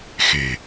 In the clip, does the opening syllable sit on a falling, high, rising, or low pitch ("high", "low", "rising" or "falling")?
low